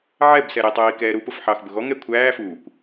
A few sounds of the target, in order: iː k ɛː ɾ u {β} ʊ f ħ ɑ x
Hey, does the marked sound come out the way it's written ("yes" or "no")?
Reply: no